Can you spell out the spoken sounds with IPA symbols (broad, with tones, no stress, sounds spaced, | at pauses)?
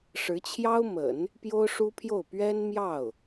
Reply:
ʂ ɻ̩˧˥ t͡ɕʰ j ɑ˥ ʊ̯ m ə̰˨˩˦ n | p j o˥ ʊ̯ ʂ u˥ pʰ j o˥˩ ʊ̯ p ɥ ɛ˥ n m j ɑ˥˩ ʊ̯